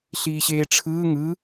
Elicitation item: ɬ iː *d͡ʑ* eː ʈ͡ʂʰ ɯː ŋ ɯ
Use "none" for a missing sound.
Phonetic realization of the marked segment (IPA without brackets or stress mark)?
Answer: ɕ